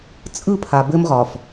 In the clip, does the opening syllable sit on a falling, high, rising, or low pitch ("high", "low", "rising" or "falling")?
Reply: falling